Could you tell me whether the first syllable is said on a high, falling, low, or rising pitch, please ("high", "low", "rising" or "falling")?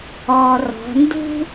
low